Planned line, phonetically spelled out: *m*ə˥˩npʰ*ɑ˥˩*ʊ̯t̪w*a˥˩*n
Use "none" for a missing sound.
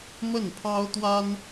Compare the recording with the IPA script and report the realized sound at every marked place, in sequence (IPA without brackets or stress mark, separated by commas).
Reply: m, ɑ˥, a˥